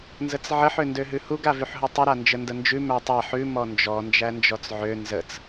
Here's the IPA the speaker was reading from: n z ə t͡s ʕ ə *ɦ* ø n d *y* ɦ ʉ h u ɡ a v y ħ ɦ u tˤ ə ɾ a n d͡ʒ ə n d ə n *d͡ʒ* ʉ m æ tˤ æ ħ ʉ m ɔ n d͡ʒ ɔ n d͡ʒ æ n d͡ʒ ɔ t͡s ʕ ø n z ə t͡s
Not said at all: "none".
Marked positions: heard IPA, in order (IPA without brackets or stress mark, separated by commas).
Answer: ħ, ø, d͡ʒ